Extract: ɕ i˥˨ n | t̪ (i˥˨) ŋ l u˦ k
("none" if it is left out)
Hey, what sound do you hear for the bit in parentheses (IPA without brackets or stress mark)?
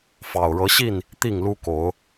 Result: i˥˨